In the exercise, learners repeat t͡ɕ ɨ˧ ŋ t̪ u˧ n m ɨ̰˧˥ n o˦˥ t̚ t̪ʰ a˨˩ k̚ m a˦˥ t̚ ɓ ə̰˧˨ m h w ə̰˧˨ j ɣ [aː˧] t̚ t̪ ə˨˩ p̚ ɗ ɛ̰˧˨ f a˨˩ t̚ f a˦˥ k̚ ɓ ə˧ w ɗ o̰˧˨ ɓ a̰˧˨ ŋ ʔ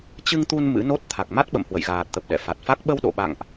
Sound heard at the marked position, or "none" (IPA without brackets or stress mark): aː˨˩